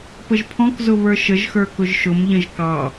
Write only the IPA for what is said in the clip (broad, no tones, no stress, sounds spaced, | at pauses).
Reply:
p ə ʒ pʰ ɔ̃ k z ʊ β ə˞ ʃ ə ʒ x ə˞ k ʊ ʒ ʃ ʊ m ʎ ə̃ ʒ k ɑ